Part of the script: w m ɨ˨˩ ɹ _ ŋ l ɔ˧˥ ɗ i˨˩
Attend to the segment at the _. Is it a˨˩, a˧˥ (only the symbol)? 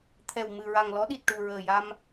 a˨˩